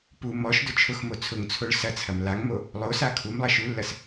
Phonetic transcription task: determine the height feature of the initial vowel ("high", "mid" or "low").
high